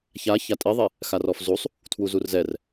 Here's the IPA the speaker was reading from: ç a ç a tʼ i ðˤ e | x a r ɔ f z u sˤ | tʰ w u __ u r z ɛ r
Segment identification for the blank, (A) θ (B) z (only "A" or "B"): B